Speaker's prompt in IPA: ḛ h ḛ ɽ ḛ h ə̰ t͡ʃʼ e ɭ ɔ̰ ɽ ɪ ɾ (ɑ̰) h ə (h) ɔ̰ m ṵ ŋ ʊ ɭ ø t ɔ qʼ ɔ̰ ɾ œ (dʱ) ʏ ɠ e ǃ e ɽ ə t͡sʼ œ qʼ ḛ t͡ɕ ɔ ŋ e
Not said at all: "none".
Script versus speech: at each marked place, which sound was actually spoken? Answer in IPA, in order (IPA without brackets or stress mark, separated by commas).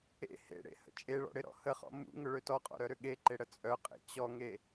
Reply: ɔ̰, χ, ɾ